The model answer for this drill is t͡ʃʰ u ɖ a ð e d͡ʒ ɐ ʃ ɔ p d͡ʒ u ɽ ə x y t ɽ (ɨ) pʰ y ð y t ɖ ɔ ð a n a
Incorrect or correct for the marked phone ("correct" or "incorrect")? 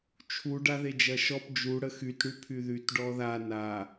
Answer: incorrect